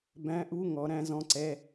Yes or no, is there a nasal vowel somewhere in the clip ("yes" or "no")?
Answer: yes